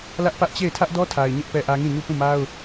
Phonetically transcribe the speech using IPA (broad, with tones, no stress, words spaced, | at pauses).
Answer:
lä˦ʔpä˦ʔt͡ɕe˦˨ɪ̯ tʰä˦ʔdɔ˦tʰa˨ɪ̯ ɲɪ˦ʔ pɛ˦ʔä˦ ŋĩ˦˨ɲu˦˨ pũ˦˨ma˦ʊ̯